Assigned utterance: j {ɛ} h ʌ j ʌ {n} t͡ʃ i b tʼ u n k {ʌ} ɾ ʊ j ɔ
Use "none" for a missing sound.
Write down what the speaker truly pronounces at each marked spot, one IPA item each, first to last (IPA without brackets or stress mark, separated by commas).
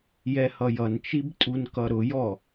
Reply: ɛ, n, ʌ